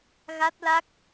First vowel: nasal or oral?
oral